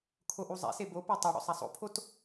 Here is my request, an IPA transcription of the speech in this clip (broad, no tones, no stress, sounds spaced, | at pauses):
kʰ o ʔ u zˤ ɛ̰ s e b o p o tˤ o ɽ o̰ sˤ a sˤ o̰ pʰ o t